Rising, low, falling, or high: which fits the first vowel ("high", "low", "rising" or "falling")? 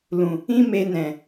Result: low